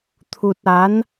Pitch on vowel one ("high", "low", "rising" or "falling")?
low